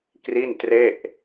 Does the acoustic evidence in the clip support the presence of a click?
no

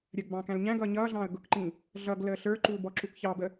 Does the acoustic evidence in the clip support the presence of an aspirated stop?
no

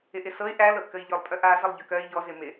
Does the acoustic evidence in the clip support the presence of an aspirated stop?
no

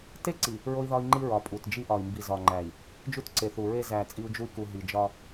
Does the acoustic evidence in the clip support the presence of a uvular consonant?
no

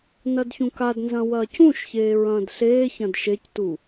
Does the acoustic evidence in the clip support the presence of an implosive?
no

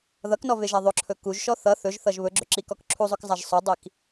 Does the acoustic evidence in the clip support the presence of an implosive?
no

